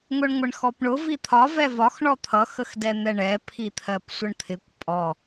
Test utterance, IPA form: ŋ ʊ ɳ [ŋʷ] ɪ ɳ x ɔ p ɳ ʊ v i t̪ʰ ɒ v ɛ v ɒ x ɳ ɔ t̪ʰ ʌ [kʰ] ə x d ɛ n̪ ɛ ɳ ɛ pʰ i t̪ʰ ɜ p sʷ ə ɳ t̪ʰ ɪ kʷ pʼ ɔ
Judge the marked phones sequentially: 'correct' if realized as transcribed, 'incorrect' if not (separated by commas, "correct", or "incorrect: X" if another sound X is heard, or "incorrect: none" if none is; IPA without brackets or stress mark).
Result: correct, incorrect: x